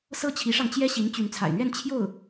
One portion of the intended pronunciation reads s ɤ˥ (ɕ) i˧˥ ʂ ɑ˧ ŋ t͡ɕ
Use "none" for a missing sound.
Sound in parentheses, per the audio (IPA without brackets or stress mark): t͡ɕʰ